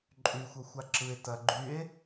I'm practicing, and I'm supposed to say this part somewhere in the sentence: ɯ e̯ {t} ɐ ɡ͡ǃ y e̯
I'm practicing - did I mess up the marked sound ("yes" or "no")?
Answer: no